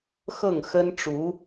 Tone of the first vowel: falling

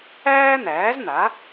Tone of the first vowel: high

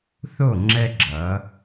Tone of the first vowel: falling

